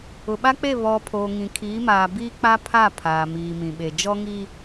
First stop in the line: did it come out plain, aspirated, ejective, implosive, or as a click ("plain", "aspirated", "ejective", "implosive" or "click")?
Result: implosive